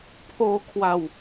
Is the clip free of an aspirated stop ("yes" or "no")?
no